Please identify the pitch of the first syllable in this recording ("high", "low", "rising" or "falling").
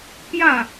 falling